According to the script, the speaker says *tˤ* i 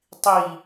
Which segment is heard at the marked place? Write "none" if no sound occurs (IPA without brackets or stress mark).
tˤ